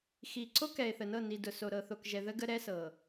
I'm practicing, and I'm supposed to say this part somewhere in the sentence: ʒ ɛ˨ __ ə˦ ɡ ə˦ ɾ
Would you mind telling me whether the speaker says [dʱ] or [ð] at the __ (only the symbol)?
ð